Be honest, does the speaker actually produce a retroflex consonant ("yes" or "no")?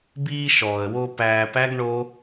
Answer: yes